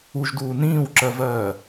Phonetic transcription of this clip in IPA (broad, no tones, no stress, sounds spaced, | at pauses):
u ʒ d uː n ĩː w ǁ ɜ v ɜː